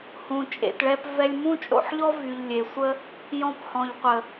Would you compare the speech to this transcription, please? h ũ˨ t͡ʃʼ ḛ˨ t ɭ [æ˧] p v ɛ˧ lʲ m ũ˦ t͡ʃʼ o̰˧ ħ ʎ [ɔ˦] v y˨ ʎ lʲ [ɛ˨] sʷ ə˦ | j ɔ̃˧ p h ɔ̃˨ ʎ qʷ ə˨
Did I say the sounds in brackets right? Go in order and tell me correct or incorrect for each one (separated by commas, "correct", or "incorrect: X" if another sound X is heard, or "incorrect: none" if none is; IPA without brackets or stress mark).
incorrect: ɛ˧, correct, incorrect: e˨